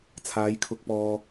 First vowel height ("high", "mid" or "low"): low